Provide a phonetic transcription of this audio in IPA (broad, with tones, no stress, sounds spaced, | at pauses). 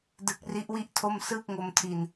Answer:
d ɯ˦˥ k̚ r i˦˥ ʔ w i˥˩ ʔ tʰ o˥˩ m s ɯː˥˩ k̚ ŋ o˧ m tʰ i˨˩ n